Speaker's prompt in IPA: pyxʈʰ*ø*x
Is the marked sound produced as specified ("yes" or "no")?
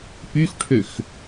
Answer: yes